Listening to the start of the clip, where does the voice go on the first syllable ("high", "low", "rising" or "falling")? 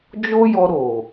high